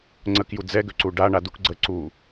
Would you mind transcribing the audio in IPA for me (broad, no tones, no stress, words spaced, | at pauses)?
ŋ͡ǀək jud͡zɛɡø ǀuɖaɳa duk ɡ͡ǀə ǀu